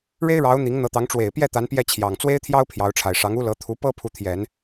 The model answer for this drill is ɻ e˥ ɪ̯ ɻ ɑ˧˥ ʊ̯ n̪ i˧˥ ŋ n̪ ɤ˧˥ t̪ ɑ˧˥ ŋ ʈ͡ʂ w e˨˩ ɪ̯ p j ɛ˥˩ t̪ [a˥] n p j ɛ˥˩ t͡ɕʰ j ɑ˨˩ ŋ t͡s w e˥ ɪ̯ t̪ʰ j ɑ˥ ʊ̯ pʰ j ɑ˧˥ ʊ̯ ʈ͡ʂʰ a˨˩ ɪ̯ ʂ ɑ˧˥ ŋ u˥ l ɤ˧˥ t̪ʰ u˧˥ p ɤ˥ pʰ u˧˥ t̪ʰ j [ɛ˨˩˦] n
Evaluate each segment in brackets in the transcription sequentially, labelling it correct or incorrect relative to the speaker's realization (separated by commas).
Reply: incorrect, correct